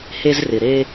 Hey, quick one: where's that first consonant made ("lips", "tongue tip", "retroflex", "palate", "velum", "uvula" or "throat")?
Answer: throat